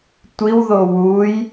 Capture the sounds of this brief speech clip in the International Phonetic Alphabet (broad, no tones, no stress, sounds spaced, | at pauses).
tʷ i w ð o w u j